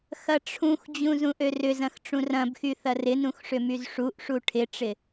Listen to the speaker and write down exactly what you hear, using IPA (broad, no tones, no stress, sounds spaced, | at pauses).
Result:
x ɐ ʈ͡ʂʰ ũ x d͡ʑ ũ z ũ ʔ ø r ʏ z ɐ̃ x ʈ͡ʂ ũ r ɐ̃ b x y θ ɐ r ɪ n ũ x ʂ ʏ m y z ʂ u ʔ ʂ u ʈʰ ɪ ʈ͡ʂ ɪ